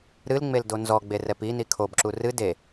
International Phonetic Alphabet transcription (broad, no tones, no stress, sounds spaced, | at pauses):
ɾ ɨ l ŋ͡m e l d o n z ɔ ɡ͡b e r ɛ p i n i kʰ o b ǁ u r ɨ d e